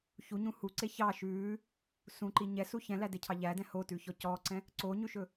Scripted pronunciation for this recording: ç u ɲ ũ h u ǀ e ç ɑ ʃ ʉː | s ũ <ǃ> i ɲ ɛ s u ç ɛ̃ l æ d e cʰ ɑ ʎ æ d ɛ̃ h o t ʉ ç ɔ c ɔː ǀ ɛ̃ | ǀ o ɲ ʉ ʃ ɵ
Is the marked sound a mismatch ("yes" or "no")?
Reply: no